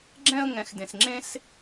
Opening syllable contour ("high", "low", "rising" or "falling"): high